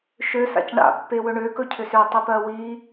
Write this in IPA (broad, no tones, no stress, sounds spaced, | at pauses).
ʃ ø s a̰ c ɳ a̰ pː e w ɵ ɳ ø k ɵ cʰ ʏ s ø tˤ i p ɜ w i